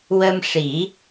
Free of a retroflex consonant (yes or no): no